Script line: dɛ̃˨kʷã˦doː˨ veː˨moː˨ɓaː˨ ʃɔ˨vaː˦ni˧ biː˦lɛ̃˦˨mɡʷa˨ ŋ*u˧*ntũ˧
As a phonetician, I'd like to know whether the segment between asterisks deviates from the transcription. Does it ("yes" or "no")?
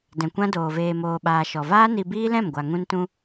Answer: yes